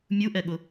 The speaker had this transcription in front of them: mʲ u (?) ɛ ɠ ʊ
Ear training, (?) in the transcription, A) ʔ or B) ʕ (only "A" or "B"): A